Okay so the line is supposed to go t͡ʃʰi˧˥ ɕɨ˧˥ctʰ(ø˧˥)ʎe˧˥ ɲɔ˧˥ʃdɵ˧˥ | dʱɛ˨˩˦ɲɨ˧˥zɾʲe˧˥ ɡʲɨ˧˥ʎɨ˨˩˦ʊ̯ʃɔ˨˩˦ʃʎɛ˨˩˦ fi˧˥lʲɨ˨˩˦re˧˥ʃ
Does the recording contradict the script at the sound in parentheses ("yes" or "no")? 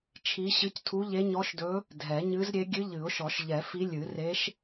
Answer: yes